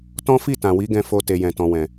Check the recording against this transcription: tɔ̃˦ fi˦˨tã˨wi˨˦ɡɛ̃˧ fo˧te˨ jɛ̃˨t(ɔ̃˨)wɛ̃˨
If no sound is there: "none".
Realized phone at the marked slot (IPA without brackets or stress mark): ɔ̃˨